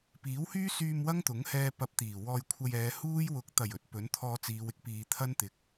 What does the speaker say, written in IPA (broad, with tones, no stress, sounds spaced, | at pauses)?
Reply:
p iː˨˥ w h yː˥ s yː˧ m w ɐ˥ ŋ t̪ ʊ˨˥ ŋ h ɛː˧ p ɐ˧ p̚ t̪ iː˨˩ w ɔː˧ j kʷʰ ɐ˧ j ɛː˨˧ h uː˥ j w ʊ˨˥ k̚ t̪ ɐ˨˩ j ɵ˧ t̚ p ɵ˨˥ n t̪ʰ ɔː˧ t͡s iː˨˧ w ɪ˥ k̚ p iː˨ t̪ʰ ɐ˥ n t̪ ɪ˨˥ k̚